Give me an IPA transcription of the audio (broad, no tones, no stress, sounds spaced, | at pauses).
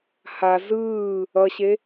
h a z ɯː | ʌ ɕ e